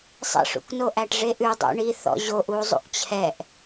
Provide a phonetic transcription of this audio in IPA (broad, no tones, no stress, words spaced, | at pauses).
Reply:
sˤḛʂṵkno ʔæʈʐeʔʉ dˤṵɳiθɔ̰ ʑoʔu zˤṵʔt͡ɕʰɛʔ